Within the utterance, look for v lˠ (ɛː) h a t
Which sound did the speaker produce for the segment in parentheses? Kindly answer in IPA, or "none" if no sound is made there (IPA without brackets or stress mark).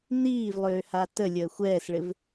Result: øː